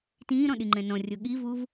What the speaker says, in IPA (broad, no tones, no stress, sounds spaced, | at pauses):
t ĩː ɾ ɔ̃ ɗ i ŋ͡ǃ ɛ̃ n ɔ̃ rʲ o ɠ i v u v